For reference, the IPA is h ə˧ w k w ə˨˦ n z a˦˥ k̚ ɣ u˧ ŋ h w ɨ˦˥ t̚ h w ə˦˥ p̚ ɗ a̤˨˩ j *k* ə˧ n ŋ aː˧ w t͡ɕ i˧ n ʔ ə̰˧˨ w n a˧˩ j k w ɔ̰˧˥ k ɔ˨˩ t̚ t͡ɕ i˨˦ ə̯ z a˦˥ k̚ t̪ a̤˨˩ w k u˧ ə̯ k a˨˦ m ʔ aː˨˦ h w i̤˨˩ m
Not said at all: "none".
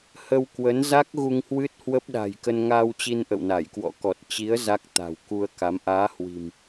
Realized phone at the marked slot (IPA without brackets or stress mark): k